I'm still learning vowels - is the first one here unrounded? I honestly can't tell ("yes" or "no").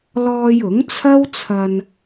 no